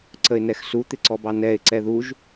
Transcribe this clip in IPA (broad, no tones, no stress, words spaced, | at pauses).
ǀəɪ̯nɛxsu t̪ɪǀɔbɑnɛɪ̯ ǀɛðuʒ